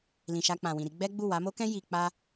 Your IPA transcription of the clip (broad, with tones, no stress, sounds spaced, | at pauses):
l ĩ˨ ʃ a˧ k͡p ã˨ w ĩ˨ ɾ i˧ ɡ͡b ɛ˦ ɡ͡b u˦˨ w a˨˦ m o˦ k ɛ̃˦ j i˧ k͡p a˦